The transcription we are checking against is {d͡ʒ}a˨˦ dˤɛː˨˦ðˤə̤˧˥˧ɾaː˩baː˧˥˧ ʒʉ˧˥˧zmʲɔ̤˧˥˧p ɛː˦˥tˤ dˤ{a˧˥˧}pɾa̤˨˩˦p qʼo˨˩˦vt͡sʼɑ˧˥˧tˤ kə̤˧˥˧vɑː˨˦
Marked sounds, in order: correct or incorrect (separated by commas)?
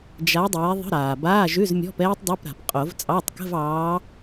correct, correct